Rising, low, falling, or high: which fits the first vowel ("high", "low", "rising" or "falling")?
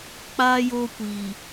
high